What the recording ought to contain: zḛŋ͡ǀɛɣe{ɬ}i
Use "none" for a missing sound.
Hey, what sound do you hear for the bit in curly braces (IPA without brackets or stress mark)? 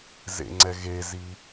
z